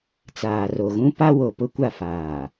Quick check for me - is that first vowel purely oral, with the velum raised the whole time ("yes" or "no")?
yes